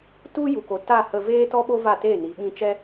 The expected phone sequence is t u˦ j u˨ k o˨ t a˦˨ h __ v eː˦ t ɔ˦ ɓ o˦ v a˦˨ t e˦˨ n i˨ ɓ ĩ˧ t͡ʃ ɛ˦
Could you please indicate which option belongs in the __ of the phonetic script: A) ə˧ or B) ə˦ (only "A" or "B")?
A